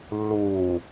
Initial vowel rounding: rounded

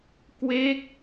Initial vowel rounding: unrounded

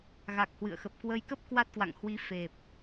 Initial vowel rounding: unrounded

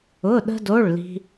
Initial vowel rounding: rounded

